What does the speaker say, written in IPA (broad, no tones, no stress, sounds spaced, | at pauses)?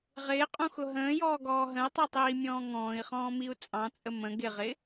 ʁ ɪː qʼ ũ x ʊ ɦ ə̃ː j ɔː ɡ ɔː ɦ ə̃ i̯ tˤ i tˤ iː mʲ ɔ̃ː ŋ ɔ̃ː i̯ χ ɔ̃ː m i u̯ t͡sʼ ɑ̃ t͡sʼ ə m ə̃ ɡ ɪ ʁ ɪ